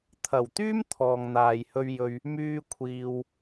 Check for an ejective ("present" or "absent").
absent